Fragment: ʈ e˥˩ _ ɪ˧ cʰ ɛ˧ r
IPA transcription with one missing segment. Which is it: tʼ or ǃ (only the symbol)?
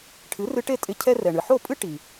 tʼ